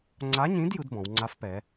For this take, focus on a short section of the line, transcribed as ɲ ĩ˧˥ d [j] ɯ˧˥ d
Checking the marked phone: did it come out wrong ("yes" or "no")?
no